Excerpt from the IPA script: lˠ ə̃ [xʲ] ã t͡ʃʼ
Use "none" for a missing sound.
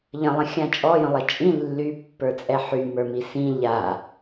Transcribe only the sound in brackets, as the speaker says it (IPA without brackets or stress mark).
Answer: xʲ